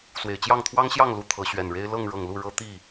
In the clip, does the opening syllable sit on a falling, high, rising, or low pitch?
low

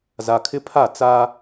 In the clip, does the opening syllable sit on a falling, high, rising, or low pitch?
low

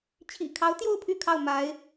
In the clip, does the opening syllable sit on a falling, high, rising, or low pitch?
low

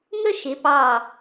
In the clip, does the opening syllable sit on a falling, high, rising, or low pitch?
high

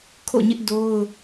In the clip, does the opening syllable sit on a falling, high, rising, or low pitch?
falling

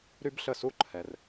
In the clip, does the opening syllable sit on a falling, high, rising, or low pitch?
high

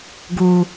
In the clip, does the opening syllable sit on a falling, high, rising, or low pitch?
low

